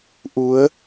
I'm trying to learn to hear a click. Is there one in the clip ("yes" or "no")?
no